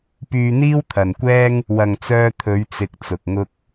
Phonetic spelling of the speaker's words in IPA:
p yː˧ n̪ iː˥ w t̪ʰ ɐ˨ n kʷ ɛː˥ ŋ | w ɐ˨ ŋ t͡s œː˧ t̪ʰ ɵ˨˧ ɥ t͡s ɪ˨ k̚ t͡s ʊ˨ k̚ ŋ ʊ˥ k̚

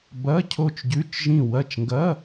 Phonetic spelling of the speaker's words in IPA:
b ɐ˧˥˧ cʰ o˦˨ t͡ʃ ɟ ʉ˧˥˧ t͡ʃ ʒ ĩ˦˨ w ɐ˦˨ t͡ʃ ŋ ɡ ɐ˧˥˧

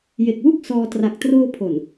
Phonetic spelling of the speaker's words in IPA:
j e˨˩ k̚ w u˥˩ k̚ s ɔː˧ t r a˨˩ k̚ t r oː˧ pʰ o˨˩ n

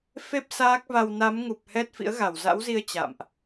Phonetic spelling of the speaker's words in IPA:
f e˦˥ p̚ s aː˦˥ k̚ v a˧ w n a˨˦ m ŋ u˨˩ p̚ h ɛ˦˥ t̚ f ḭ˧˥ ə̯ ɣ a˧˩ w z a̰˧˥ w z i˧ ə̯ t͡ɕ a̰˧˨ m ʔ

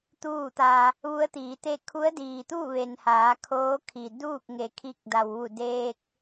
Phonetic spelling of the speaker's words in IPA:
t̪ uː˥˨ t̪ a˧ | ʋ u˧˥ ə̯ t̪ iː˩˧ t̪ e˥˨ kʰ u˧˥ ə̯ d iː˩ t̪ uː˥˨ ʋ e˩ n h aː˩˧ kʰ oː˧˥ kʰ i˩ d uː˥˨ k̚ ŋ e˩ kʰ i˧ k̚ d a˩ w ʋ u˧˩ d eː˧ k̚

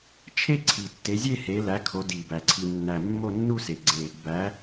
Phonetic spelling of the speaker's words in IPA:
t͡ʃʰ e˥˧ ǀʰ i˨˩ tː e˨˦ zʲ e˥˧ h e˨˦ l æ˨˦ kʰ o˨˦ d i˨˩ b æ˨˩ ǀʰ i˨˩ nː æ˨˩ mː o˥˧ nː u˥˧ s e˨˩ ɡ͡ǀ e˨˩ | b æ˨˦

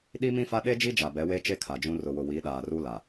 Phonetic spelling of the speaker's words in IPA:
ɗ i˦ m ĩ˦ f a˦ ɗ e˦ d͡ʒ i˦ d͡ʒ a˨ b ɛ˨˦ w e˦ t͡ʃ e˦ kʰ a˨ d͡ʒ ũ˦ r ʊ˨ w ʊ˨ w i˨˦ ɗ aː˨ r u˦ l a˨

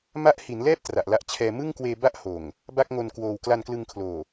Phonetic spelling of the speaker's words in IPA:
m a˥˩ ʔ h i˩˦ n l ɛː˥˩ p̚ t r a˨˩ ʔ l a˦˥ ʔ t͡ɕʰ ɛː˧ m ɯ˥˩ ŋ k w eː˧ b a˥˩ ʔ h oː˨˩ ŋ | b a˥˩ k̚ ŋ o˧ n k w oː˧ w k l a˧ n k l ɯ˧ ŋ kʰ l oː˨˩

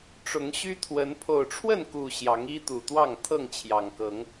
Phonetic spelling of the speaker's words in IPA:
ʈ͡ʂ ʊ˨˦ ŋ ɕ y˦ t̪ʰ w ə˨˦ n pʰ o˨˩ ʊ̯ ʈ͡ʂʰ w ə˥˨ n k u˨˩ ɕ j ɑ˨˦ ŋ i˦ t̪ u˨˩ t̪ w ɑ˥˨ ŋ t̪ʰ ɤ˥˨ ŋ t͡ɕʰ j ɑ˨˩ ŋ k ɤ˨˦ ŋ

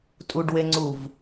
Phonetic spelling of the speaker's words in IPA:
tʼ u ɖ w e ŋ͡ǀ u v

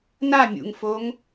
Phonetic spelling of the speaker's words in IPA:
n a mʲ ṵ ŋ f o ŋ

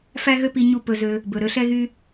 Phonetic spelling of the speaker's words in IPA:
f æ˦ ɣ ø˦ p i˧ ɲ u˦ p ɵ˧ z ø˧ | b ɵ˨ ɾ ø˧ ɬ ɛ˦ ɣ y˦

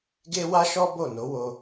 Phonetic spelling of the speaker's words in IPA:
ɡ e˦ w a˦ ʃ ɔ˦ b o˦˨ n o˨˦ w o˧

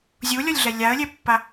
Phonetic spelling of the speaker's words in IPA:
zʲ u lʲ ɔ lʲ ɮ ɛ lʲ a ə̯ lʲ ɛ pː a

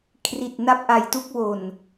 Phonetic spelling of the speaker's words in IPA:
kʰ r i˨˩ t̚ n a˦˥ p̚ ʔ a˧ j t u˦˥ k̚ w o˨˩ n

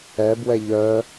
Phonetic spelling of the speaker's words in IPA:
ɛ b w ɛ ʎ œ

